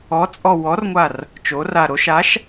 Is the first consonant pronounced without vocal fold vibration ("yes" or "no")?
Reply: yes